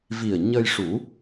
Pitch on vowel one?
low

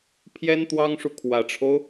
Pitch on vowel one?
high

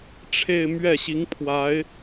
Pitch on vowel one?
falling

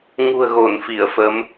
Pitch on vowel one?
low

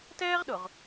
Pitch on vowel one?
high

